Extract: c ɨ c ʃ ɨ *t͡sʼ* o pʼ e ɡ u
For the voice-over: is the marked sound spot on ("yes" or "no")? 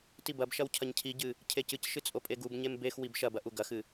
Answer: yes